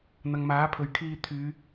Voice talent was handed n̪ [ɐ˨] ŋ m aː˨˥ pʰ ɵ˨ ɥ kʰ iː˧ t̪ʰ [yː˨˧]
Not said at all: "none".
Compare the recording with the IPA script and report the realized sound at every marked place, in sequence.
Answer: ɐ˨, yː˨˧

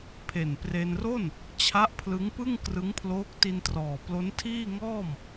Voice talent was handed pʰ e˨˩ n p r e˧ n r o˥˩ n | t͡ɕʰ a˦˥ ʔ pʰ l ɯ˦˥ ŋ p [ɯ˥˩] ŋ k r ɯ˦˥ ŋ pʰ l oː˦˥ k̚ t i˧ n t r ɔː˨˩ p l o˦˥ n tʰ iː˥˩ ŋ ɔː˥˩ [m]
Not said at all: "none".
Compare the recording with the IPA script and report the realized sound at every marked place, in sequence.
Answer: ɯ˥˩, m

